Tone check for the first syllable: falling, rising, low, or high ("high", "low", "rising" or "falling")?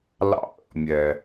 high